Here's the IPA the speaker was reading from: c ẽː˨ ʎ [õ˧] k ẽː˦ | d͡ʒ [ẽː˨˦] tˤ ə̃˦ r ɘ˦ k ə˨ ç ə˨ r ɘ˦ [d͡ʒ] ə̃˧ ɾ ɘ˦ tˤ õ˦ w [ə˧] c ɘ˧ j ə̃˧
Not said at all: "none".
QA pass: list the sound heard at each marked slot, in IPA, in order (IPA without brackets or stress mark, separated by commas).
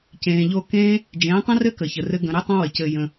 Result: o˧, ẽː˨˦, ɡ, ə˨